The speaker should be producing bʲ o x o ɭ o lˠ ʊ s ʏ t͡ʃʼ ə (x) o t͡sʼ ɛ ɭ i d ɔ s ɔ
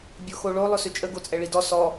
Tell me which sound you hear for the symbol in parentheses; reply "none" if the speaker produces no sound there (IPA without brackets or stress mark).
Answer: ɡ